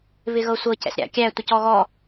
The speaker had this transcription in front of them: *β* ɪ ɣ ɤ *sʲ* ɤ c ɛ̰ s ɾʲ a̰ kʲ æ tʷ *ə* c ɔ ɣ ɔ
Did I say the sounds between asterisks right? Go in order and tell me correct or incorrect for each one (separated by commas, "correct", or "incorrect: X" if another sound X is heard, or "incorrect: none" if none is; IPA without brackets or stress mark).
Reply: correct, incorrect: sʷ, correct